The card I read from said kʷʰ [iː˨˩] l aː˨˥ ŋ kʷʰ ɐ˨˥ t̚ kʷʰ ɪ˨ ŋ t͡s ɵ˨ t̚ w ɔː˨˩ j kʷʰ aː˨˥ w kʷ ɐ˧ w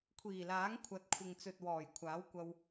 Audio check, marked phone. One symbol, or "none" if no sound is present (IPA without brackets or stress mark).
iː˨˩